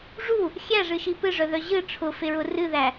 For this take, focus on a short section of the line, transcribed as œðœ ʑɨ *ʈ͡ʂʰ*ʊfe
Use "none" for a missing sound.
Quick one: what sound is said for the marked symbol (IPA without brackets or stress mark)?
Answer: ʈ͡ʂʰ